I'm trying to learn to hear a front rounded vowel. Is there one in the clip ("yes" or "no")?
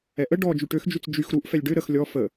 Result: yes